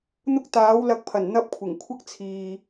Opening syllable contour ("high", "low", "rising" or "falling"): high